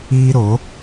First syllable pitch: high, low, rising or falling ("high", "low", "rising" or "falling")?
high